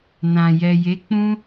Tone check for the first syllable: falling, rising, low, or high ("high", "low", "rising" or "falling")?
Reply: low